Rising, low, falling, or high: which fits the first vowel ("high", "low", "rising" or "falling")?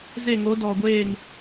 falling